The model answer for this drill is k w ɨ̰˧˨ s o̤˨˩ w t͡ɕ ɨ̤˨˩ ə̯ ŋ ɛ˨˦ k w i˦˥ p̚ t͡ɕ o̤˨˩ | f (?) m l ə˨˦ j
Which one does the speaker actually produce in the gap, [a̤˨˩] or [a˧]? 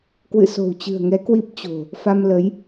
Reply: a˧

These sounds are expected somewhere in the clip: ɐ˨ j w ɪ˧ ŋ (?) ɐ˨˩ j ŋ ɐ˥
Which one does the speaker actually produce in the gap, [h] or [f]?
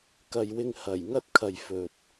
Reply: h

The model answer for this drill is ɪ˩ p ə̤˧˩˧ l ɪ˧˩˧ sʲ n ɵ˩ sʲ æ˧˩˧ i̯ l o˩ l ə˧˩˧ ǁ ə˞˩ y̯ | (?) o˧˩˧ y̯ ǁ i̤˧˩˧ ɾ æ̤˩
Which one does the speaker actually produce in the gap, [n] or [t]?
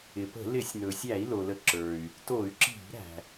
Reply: t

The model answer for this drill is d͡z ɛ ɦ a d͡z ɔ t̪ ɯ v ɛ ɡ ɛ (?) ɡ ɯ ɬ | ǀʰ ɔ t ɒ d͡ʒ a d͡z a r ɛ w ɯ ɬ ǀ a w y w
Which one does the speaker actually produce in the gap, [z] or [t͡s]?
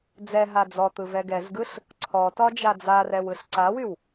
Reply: z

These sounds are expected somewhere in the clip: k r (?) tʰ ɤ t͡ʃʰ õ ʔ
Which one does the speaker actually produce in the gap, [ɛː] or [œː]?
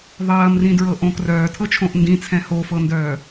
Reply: œː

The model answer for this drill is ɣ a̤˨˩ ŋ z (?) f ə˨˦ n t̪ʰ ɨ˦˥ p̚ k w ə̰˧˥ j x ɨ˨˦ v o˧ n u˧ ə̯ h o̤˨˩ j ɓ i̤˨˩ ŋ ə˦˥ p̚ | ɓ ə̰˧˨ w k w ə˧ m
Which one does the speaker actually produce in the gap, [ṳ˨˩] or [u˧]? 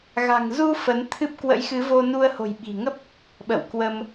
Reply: u˧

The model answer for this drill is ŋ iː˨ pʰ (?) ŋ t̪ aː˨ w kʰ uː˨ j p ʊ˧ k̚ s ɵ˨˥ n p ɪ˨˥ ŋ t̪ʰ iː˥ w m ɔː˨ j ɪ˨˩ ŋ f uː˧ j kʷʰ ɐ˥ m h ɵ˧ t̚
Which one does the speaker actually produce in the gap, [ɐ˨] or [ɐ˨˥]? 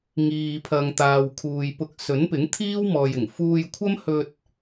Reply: ɐ˨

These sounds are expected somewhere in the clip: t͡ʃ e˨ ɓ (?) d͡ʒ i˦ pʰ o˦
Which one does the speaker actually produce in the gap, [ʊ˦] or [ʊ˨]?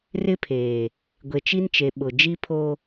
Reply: ʊ˨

